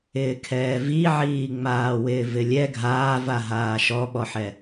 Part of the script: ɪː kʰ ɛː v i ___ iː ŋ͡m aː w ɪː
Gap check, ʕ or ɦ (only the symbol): ʕ